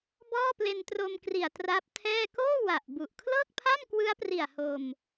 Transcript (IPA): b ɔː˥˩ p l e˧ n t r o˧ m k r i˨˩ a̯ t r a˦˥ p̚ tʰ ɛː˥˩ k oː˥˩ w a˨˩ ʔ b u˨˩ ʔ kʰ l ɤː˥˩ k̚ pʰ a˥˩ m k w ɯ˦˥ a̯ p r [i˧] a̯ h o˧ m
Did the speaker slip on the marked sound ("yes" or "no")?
yes